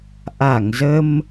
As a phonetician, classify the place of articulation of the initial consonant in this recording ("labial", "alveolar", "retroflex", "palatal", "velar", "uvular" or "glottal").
glottal